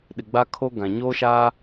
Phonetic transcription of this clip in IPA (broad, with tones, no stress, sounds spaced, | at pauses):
ɗ ɪ˨ ɡ͡b a˦ kʰ o˦ ɡ ã˨ ɲ oː˦ ʃ aː˦